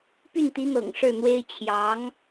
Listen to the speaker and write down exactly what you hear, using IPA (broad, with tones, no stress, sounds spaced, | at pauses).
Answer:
p y˥˩ n t̪ i˧˥ n̪ ɤ̰˨˩ ŋ ʂ ɻ̩˥˩ n̪ w e˥ ɪ̯ t͡ɕʰ j ɑ˧˥ ŋ